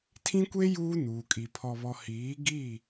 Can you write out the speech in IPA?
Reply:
tʰĩ˦kʷe˦ juː˦nuː˨kʼi˨ pʰɔ˨βɔ˨ hiː˨˦ɡi˦˨

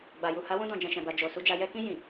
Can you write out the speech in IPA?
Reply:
ɡ͡ba˨ju˨ ha˨˦wũ˧dɔ̃˨ d͡ʒɛ̃˨ʃɛ̃˨ba˨ d͡ʒo˨ su˨d͡ʒa˨ jɛ˧kĩ˧ jĩ˨

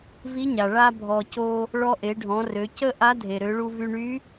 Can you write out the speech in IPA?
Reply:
vi˧˥ɲa˩ ɭa˥bʱɔ˧ co˧ | ɭɔ˧ʔe˩˧ɖʱɔ̃˩˧rø˩˧ cə˥ ʔa˧˥dʱe˩ɾø˩˧ɭu˧ vy˧ɳy˧˥

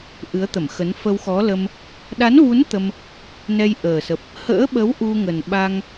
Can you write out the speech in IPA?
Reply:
ʔɨ˨˦ə̯t̪ə˧˩mxə˨˦n fə˧wxɔ˨˦lə˧m | ɗa˨˦nvu˨˦n t̪ə˧m | nɛ˧jʔəː˨˩sə˨˩p̚ | hə̰ː˧˥ɓə˨˦w ʔu˧ŋə˨˩n ɓa˧ŋ

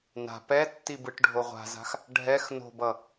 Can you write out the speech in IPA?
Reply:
na̤ pɛtːi bɯʈɖʱoʁʷa̤za̤x | ɖʱɛx no̤bʌ

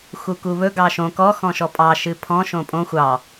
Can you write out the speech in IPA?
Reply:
xukuβɵ ɡɑʃõ kɔ xɔ̃ʃɔpʼɑ ʃɨpʰɔ̃ ʃõpʼõ xʷɑ

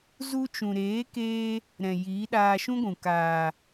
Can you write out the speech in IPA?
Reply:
zu˧t͡ʃũ˨ɾeː˨˦keː˧ | ɾɛ̃˨ jiː˨˦ɗaː˧ʃũ˦ɡʷũ˨ kaː˨

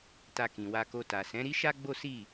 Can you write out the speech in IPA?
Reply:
ta˧kĩ˨wa˧ko˧ ta˨sɛ̃˨˦ ɾi˦ʃa˦ɡ͡bo˦ si˦˨

